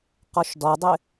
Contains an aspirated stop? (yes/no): no